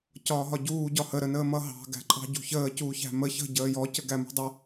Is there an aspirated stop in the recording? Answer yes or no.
no